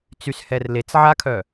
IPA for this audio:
t͡s y s h ɛ r l e t͡s ʕ a kʰ œ

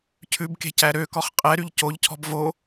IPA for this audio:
cʰ ʉ b k e̤ c æ ɾ ø k ɔ χ qʼ ɛ ɾ y ʎ c o ʎ cʰ ɔ̤ b v o

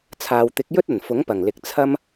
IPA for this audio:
t͡sʰ aː˨ w t̪ ɪ˨˥ k̚ j ɵ˥ t̚ ɐ˨˩ n f ʊ˨˥ ŋ p ɐ˨˩ ŋ l ɪ˨ k̚ t͡sʰ ɐ˥ m

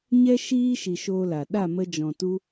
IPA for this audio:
ɲ ɛ˦ ʃ iː˦ ʃ i˧ ʃ oː˦ l a˨ ɗ a˦˨ m ə˧ d͡ʒ ɔ̃˨ t u˧

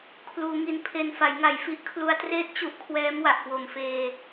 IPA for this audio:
kʰ l uː˩˦ ŋ i˨˩ n pʰ e˨˩ n f a˩˦ j ŋ a˨˩ j f i˦˥ ʔ kʰ l u˧ a̯ t r eː˥˩ t̚ t͡ɕ u˦˥ ʔ kʰ w ɛː˦˥ m w a˨˩ ʔ k w o˨˩ m f eː˧

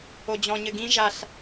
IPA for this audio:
o d͡ʑ ɔ̃ ɲ ɘ ɡ ĩ ʒ a ɬ

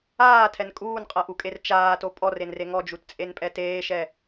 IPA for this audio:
aː tʰ ɛ n kʼ uː n qʼ ɤ ʔ u kʼ e r t͡ʃ aː t o pʼ ɔ r e n r e ŋ ɔ d͡ʒ u t t͡sʼ e n pʼ ɛ t eː ʃ ɛ

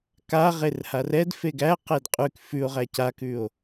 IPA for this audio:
k a ʁ e r h a r ɛ d f e ɡ æ q e d qʼ ʉ k f ʉ o̯ ʁ æ c a k ʉ o̯

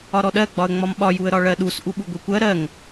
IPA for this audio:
ɒ ɾ ɔ ɗ ɜ ɡ͡b ɒ ə̯ ŋ͡m ɒ m ɓ ɒ j u ə̯ ɾ ɒ ɭ ɜ ɗ u s ʔ u ɓ u ɡʷ i kʷ ɜ ɾ ɜ ŋ

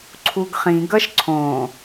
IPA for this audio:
ǀʰ u ɡ χ ĩ ɡ ʌ ʃ ǀʰ õ

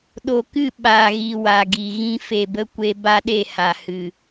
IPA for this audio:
ɗ o˨ k ɨ˦˨ ɓ aː˨ ɣ i˨ w a˨ ɡ i˨ ɣ ĩ˧ f e˨ b ə˧ kʷ e˧ b a˦ ɗ e˦˨ h a˨ h ɨ˨

